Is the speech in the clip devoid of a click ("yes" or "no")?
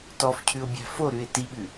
yes